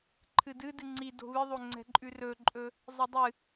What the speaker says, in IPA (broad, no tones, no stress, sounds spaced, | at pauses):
ǃʰ ɨ d ɨ d ɨ ŋ͡ǀ i d o̤ β ɨ ðˤ o ŋ͡ǀ ɛ̤ ǃʼ ʉ r ɵ ǃʼ ɵ | zˤ i dˤ ɨ